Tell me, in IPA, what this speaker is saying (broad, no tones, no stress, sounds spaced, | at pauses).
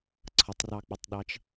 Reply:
ǀʰ ʌ tˤ r ɑ k͡p ʌ tˤ ɗ ɑ t͡ʃ